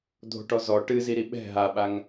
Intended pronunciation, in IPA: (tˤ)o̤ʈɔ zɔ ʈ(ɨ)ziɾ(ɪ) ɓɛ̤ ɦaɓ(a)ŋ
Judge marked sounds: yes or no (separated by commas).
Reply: no, yes, no, yes